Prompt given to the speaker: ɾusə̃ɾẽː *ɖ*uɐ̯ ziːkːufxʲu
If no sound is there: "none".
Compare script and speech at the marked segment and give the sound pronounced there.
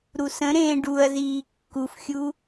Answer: ɖ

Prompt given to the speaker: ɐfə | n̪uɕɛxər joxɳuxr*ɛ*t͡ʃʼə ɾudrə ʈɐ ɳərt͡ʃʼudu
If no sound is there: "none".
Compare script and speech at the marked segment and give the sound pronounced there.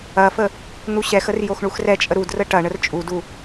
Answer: ɛ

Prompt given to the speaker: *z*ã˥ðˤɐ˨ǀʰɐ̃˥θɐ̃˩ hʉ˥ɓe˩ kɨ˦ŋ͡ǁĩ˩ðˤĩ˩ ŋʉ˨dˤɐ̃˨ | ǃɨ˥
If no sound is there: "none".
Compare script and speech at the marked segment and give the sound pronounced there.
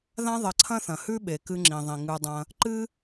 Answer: ð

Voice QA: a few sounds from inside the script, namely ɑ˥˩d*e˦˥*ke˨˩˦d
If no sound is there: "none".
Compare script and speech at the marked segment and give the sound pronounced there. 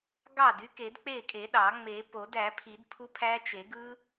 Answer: y˦˥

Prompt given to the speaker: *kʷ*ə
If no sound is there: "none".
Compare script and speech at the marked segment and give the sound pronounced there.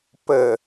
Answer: p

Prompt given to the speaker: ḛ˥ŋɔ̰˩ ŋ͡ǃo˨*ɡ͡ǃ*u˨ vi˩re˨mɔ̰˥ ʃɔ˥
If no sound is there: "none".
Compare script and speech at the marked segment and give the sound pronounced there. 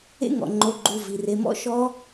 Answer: ɡ͡ǃ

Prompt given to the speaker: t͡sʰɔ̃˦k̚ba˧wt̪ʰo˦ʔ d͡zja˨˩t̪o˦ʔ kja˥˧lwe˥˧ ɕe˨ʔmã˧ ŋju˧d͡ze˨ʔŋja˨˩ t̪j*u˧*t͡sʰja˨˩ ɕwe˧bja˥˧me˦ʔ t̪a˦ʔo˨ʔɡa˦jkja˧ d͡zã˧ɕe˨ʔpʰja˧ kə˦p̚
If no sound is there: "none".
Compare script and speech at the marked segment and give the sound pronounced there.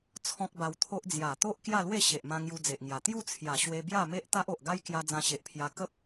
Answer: u˥˧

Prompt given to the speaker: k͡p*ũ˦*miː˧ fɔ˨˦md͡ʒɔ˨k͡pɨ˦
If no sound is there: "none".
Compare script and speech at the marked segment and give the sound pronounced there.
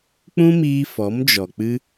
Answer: ũ˦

